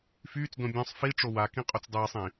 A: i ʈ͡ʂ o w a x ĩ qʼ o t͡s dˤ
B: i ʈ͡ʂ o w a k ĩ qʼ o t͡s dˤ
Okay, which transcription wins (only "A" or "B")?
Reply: B